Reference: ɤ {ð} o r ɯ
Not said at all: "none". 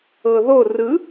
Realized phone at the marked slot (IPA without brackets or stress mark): ð